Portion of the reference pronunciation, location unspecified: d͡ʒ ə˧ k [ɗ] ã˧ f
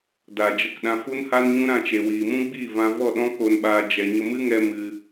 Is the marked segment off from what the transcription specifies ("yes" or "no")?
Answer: no